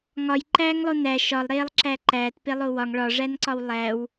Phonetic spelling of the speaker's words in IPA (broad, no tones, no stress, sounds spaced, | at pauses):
ŋ ɒ j ǃ æː ŋ lˠ o n æ ʃ ɒ lˠ ɾ eː lˠ ǁ æ ǃ æː t p e lˠ o w ɒ ŋ ɭ ɒ ʐ æ n ǀ ɒ w lˠ æ w